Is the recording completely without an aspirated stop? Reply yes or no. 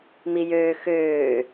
yes